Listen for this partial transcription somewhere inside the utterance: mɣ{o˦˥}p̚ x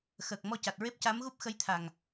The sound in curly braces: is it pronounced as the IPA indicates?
no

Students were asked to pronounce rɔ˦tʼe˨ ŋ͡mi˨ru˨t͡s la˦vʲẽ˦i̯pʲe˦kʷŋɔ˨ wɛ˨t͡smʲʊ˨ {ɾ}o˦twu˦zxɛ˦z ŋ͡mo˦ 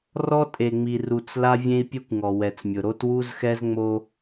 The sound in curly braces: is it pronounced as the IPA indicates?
yes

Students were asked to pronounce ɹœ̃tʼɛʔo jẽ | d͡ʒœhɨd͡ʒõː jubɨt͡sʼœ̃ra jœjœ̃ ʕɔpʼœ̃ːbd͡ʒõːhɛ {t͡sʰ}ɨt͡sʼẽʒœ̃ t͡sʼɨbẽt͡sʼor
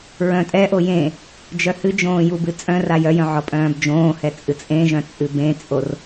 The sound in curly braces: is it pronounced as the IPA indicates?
no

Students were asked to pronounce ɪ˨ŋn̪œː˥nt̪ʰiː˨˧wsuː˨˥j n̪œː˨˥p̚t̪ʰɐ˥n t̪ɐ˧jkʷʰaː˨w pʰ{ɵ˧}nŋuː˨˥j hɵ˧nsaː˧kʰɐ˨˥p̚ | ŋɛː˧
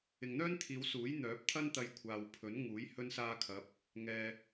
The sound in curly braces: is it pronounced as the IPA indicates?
no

